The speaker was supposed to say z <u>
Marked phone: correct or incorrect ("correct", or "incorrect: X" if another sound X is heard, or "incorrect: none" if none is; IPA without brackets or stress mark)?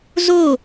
incorrect: o